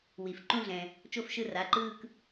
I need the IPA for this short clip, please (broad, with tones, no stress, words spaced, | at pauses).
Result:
wi˩f ǃũ˥˧ɮɛ̃˩ | t͡ʃo˥˧fʃɯ˥˧ ra˩˧˩ǃɯː˥˧k